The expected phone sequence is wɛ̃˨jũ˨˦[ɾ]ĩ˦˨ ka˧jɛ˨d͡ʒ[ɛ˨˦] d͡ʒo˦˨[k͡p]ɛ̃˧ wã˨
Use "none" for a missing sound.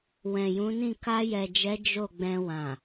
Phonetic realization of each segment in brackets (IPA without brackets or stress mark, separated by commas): n, ɛ˨˦, ɡ͡b